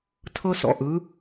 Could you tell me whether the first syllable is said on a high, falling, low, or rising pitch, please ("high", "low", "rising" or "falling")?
high